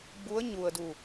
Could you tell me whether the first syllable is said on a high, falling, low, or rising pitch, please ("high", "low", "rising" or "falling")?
rising